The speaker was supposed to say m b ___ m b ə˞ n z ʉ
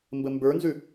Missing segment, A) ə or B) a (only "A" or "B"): A